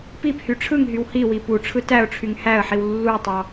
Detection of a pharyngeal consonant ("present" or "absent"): present